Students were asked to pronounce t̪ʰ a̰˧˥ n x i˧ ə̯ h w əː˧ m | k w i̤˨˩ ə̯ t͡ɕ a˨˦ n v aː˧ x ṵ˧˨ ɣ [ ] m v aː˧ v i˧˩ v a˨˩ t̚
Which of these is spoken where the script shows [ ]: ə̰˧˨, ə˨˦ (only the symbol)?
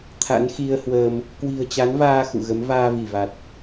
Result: ə˨˦